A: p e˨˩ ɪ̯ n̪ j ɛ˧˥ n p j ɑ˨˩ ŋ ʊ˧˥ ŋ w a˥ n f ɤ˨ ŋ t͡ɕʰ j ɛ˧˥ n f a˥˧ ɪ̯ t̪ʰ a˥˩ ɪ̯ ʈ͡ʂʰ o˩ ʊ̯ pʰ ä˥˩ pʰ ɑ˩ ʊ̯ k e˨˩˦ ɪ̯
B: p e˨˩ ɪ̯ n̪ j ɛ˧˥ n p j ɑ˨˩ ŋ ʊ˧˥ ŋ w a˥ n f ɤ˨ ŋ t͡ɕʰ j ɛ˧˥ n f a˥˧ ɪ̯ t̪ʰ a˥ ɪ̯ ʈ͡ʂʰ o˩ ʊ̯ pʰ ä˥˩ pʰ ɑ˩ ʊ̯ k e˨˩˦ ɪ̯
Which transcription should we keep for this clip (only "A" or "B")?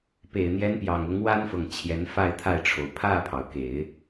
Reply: A